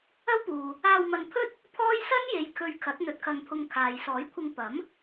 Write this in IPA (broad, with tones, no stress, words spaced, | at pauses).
ɐ˥wpuː˨ | aː˧wmɐ˧n pʰɵ˥t̚ | pʰɔː˥j sɐ˥nje˨˧j kʰɵ˧ɥkʰɐ˨˥t̚ n̪ɵ˧t̚kʰɐ˧ŋpʰʊ˧ŋkʰaː˨j sɔː˨˥jkʷʰɪ˧ŋ pɐ˨˥m